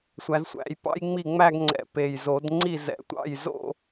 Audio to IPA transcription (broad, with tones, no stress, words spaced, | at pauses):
sʷæ˨˦zsʷæ̰˨˦jpɑ̰˥j ŋ͡mi˥˩ŋ͡mæ˥˧ɡŋ͡ǀɛ̰˨˩ pe˨˩jzo˨˩˦dŋ͡ǀi˥˩ zɛ̰˨˩˦ tʷɑ̰˥˩jzo̰˥˧